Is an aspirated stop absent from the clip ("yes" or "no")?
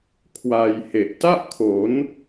no